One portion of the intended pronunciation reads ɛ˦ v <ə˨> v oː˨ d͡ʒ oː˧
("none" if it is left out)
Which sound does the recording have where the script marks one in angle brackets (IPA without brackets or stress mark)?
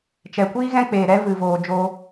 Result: ɨ˨